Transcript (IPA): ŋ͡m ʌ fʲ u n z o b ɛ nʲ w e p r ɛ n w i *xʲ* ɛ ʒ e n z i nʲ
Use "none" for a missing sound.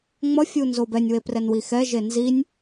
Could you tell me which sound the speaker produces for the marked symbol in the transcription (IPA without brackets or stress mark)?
x